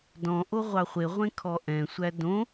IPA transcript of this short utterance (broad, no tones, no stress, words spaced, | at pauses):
dɔ̃ʔo ʁʷɑχʷeʁʷẽ kʰɔʔɛ̃sʷæ dõ